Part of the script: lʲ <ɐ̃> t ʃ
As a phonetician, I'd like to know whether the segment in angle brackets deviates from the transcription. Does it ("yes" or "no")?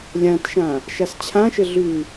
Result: yes